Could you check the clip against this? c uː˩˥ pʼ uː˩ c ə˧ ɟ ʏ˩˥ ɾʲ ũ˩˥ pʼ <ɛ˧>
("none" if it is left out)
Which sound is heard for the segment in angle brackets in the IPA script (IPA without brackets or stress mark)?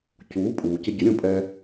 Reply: ɛ˧